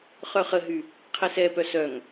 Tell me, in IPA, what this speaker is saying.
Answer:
χœχəɦy | qʰɛsɛpœ sœŋ

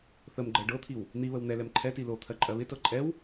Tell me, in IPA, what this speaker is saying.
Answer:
θəmɡ͡ǃɜ ɖɤt̪ʰiw | n̪iβəw n̪ɛlɛm ǃʰɛti lot̪ʰɜ ǃʼɜβɪtɤ ǃʼɛw

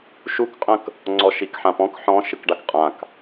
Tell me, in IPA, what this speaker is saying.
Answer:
ʃukqʼə̃k | ŋ͡ǀɔʃikħãpɔ̃k ħɔ̃ ʃɨkɖakqʼãk

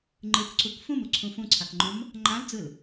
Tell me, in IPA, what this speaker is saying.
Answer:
ŋ͡ǃɯkǀuk fũmuǀʰũ fũǀʰakŋ͡ǃõm | ŋ͡ǃãld͡zɯl

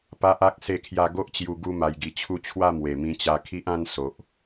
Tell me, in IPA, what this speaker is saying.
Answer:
pa˦ʔa˦k̚ se˥˧kʰja˥˧ ɡo˦ʔt͡ɕju˧ ɡu˦ma˧jɡi˧t͡ɕʰu˥˧ t͡ɕʰwa˥˧ mwe˨˩mĩ˧t͡ɕa˧ kʰi˦ʔã˦n so˨ʔ

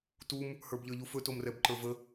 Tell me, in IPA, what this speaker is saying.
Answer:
tum | hə˞bʎə˞ʎufɵ tomrɛbǃə˞və

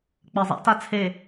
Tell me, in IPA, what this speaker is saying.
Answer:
k͡pɜzˤa̰ta t͡sʰe

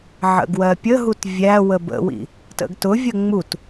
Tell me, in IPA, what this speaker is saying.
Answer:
ʕə̰ɡwɜpʲəɦut vʲæwə bə̰wḭ | tə̰ɡtʊvʲə ŋ͡mut

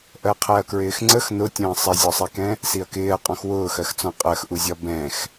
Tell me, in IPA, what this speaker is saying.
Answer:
ʔɜqʰɛɐ̯kɹɪːxŋ͡ǀəx nʊtʲə̃ː sˤɪzʲɔsˤikɛ̃ | siɐ̯kɪːɐ̯ qʼɔ̃xwʊːxɜxt͡sɔ̃ qʼɜxʔuzʲɒ bɛ̃x

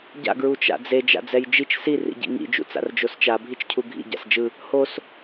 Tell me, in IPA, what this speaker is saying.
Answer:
ɟa̰ ɡɹut͡ʃa̰d͡ze d͡ʒa̰d͡zɛjd͡ʒit͡ʃ si rḭɟḭŋḭ d͡ʒṵt͡sa̰rd͡ʒost͡ʃa bʱit͡ʃcʰuɡʱḭ ɟa̰sd͡ʒɯ | hos

